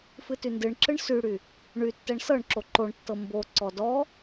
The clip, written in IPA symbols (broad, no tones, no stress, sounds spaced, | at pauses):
f ɨ t y n d ɨ ɳ ǁ ɨ ɳ s y ɽ y | ɳ y tː ɛ ɳ s ɤ ɳ ǁ o ǃ o ɳ tː ɤ m b o ǀ ɔ d ɔ